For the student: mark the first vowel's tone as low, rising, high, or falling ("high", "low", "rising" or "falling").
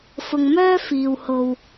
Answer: low